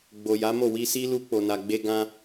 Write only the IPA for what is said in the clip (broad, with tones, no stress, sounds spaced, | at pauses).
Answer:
ɡ͡b o˨ j a˨˦ m o˦˨ w i˧ s i˦ l u˧ k͡p o˨ n a˨ ɡ͡b e˧ ɡ ã˦